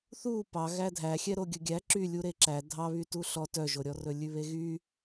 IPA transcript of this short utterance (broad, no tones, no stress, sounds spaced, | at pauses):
θ u p ɑ ɣ æ dʱ æ xʲ ɛ ɾ o ɡʲ ɵ ɡʲ æ ǁ y lʲ u ɾ e ǁ æ dʱ ɑ β y t u ɬ ɔ t œ ʒ o ɾʲ ɔ r ɵ lʲ ʉ β e ɣ y